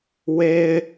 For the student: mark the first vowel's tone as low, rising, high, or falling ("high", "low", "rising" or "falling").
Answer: high